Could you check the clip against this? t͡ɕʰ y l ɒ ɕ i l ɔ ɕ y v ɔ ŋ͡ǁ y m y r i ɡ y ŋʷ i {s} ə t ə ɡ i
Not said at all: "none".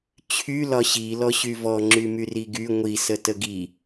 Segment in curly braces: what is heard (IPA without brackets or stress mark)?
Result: s